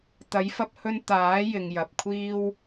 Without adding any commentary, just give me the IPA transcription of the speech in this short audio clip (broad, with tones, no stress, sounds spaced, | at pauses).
t̪ ɐ˨˥ j f ɐ˧ p̚ h ɵ˧ n t̪ aː˨˥ j ɪ˨ ŋ j ɐ˨ p̚ kʷʰ iː˥ w